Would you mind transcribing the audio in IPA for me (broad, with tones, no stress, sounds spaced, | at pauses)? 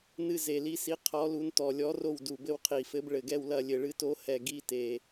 n ɨ˦˨ z e˨˩ l i˨˦ s i˨˦ qʰ ɔ˨˦ l u˨˦ n t ɔ˨˩ lʲ ɔ˨˦ r o˦˨ w d u˨˩ b ɘ˦˨ w qʰ i˨˩ f ɘ˨˦ b ɭ ɘ˨˩ ɡ ɛ˦˨ w l ɐ˦˨ lʲ ɘ˨˩ ɭ ɨ˨˦ t o˨˦ h ɛ˨˩ ɡ i˦˨ t e˨˩